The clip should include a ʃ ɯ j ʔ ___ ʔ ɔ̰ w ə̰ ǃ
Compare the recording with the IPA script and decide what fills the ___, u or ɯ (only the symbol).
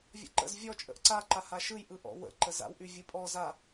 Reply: ɯ